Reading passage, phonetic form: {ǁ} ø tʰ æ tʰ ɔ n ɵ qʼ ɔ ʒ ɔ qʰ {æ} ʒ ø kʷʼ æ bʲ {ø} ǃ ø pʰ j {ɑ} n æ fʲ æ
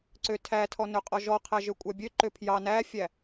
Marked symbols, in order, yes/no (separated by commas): no, yes, yes, yes